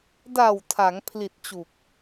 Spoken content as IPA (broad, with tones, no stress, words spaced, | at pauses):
da˨˩w tʰa˩˦ŋpʰli˨˩t̚t͡ɕu˨˩k̚